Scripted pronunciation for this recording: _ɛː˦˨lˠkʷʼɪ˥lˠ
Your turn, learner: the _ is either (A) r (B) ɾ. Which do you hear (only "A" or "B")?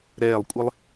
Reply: B